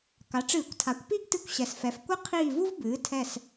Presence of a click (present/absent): absent